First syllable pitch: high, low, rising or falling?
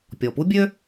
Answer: low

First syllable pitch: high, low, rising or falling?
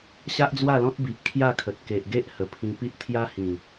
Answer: high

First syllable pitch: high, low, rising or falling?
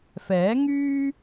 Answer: rising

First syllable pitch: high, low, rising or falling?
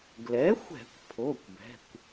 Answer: rising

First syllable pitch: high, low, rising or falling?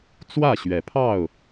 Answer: falling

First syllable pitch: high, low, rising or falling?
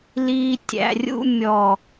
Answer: low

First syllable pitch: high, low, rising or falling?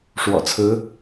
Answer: low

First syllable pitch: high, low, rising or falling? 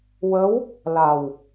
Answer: rising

